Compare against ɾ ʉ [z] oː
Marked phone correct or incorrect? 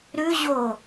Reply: incorrect